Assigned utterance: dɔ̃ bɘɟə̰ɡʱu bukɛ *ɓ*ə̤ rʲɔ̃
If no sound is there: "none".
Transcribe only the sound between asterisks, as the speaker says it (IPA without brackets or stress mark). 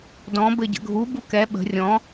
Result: ɓ